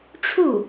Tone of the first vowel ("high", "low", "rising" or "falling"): falling